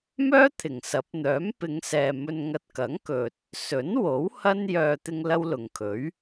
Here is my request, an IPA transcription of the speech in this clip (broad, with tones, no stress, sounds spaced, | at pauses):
m œː˥ t̪ʰ ɪ˨˩ ŋ s ɐ˨˥ p̚ n̪ œː˨˥ m p ɪ˨˧ ŋ s ɛː˨ m ɵ˧ n ŋ ɐ˧ t̚ k ɐ˨˥ ŋ k ɵ˨ t̚ | s ɵ˨˥ n w o˨˥ w h ɐ˥ n j œː˧ t̪ ɪ˥ ŋ l ɐ˥ w l ʊ˨ ŋ kʰ ɵ˨˥ ɥ